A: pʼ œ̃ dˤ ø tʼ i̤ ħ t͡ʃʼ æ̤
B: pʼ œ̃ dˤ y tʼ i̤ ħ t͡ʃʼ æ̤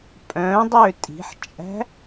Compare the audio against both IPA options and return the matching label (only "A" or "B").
A